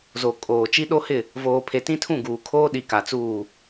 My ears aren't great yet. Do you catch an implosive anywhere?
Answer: yes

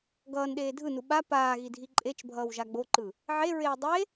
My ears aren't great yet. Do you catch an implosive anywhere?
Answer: yes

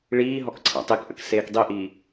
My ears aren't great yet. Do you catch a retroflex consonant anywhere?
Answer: yes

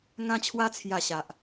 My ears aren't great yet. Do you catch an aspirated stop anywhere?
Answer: yes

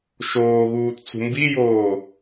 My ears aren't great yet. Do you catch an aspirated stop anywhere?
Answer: no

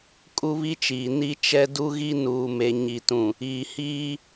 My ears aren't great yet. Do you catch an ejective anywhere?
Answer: yes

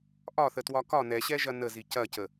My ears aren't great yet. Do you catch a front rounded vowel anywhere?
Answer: no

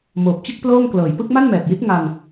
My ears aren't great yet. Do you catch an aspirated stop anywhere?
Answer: no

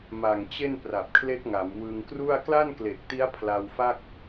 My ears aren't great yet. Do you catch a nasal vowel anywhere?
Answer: no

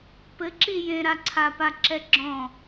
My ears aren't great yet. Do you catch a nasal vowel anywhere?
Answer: yes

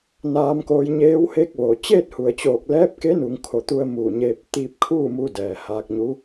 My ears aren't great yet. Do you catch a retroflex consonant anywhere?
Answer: no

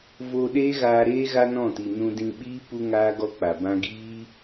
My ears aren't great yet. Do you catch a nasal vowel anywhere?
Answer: yes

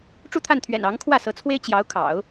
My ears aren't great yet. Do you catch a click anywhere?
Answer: no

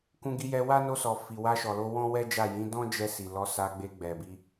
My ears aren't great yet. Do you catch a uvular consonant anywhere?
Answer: no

